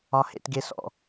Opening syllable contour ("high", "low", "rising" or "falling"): low